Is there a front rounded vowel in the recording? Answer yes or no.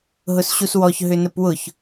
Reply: yes